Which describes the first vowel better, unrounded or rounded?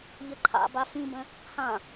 unrounded